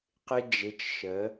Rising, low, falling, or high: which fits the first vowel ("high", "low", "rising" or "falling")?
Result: high